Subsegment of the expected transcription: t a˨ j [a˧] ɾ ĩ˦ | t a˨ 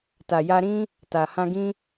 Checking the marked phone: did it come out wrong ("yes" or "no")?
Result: no